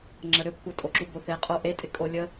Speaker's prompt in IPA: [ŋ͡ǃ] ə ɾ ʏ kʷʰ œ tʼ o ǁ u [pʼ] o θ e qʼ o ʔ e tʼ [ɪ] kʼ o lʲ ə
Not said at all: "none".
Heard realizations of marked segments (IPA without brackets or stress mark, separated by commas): ŋ͡ǁ, b, ɪ